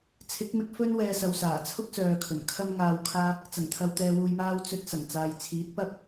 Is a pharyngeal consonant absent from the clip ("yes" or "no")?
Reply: yes